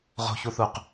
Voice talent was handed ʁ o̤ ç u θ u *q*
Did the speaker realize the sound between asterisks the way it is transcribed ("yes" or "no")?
yes